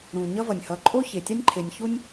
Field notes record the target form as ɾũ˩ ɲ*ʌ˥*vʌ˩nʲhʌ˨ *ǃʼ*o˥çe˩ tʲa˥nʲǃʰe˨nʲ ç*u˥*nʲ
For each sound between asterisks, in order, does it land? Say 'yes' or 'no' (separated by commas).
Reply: no, yes, yes